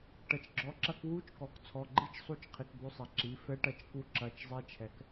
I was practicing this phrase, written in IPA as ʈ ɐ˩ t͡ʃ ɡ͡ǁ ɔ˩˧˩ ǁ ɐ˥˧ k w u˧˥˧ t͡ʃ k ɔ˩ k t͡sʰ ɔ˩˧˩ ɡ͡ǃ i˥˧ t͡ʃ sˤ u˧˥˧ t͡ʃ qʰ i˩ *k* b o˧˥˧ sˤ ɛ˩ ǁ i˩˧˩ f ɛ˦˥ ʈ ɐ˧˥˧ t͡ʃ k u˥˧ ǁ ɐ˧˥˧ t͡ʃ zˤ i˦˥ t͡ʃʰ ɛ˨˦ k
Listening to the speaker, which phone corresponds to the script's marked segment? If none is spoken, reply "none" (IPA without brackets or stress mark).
k